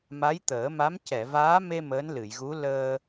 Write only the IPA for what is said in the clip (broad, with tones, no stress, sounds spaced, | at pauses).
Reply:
m a˧˥ j t̪ əː˨˩˦ m a˧˥ m c ɛ˨˩˨ v aː˧˥ m e˧ m əː˧˥ n l ɨ˨˩˨ j ɣ u˧˥ l əː˧